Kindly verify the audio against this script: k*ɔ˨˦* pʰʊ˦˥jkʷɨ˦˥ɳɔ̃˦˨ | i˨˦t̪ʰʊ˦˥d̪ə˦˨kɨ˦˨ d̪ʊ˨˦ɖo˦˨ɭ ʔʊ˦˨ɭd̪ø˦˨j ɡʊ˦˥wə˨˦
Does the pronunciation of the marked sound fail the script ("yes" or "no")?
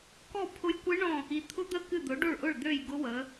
yes